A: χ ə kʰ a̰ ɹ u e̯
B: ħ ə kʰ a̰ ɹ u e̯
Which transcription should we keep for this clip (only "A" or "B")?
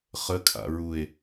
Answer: A